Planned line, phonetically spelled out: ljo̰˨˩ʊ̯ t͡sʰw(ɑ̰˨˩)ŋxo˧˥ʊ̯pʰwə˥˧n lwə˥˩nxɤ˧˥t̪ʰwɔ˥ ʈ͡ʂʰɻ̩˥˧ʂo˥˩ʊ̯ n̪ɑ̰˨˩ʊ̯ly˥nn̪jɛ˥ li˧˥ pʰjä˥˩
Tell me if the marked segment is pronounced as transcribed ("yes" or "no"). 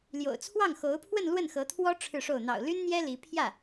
no